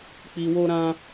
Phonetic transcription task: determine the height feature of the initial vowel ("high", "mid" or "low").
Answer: high